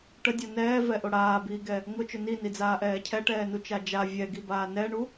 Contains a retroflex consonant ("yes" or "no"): yes